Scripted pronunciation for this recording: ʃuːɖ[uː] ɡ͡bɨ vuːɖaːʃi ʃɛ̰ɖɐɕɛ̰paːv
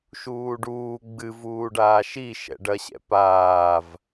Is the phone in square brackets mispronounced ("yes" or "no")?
no